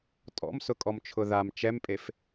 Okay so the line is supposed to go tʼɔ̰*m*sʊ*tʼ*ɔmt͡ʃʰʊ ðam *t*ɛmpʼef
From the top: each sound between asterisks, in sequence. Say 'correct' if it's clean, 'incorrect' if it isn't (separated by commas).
correct, incorrect, incorrect